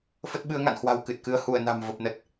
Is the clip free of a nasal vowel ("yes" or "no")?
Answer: yes